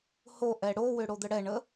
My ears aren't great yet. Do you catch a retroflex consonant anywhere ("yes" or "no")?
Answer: yes